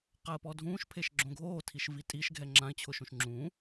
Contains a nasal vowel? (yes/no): yes